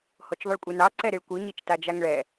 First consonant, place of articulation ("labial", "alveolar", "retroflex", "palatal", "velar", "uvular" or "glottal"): glottal